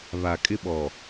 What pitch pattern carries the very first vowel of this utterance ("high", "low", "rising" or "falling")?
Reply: low